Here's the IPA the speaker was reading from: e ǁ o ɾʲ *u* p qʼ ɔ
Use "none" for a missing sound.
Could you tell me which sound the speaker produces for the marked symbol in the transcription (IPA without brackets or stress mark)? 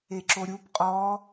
u